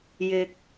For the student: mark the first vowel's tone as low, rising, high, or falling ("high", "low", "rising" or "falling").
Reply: low